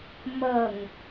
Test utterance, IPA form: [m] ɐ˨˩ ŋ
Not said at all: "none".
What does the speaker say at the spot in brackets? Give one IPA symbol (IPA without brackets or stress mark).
m